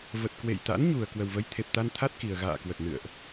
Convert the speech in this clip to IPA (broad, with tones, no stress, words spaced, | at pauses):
və˨˩t̚kwḛ˧˨jt̪a̰˧˥n ɲu˨˩ə̯ kwə˨˩wvə˨˦jt̪ʰe˨˩p̚t̪a˧n t̪ʰa˦˥t̚ ki˨˩ə̯ɣa̰ː˧˨kwə˨˩t̚nɨ̰˧˨ə̯ʔ